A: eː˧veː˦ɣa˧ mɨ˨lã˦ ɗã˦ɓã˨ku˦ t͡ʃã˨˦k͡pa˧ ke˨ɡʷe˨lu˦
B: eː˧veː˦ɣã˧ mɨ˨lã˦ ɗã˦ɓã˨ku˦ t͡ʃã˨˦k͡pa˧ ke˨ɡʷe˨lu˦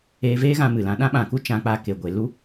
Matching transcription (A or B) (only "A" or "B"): B